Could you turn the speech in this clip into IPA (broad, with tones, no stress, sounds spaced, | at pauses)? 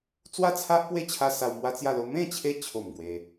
t͡s w a˥˧ t͡sʰ a˦ ʔ p w e˦ t͡ɕʰ a˧ s a˧ w m w a˦ t͡s j a˥˧ l o˦ m ẽ˥˧ t͡ɕʰ e˧ t͡ɕʰ o˨˩ m ɡ w e˧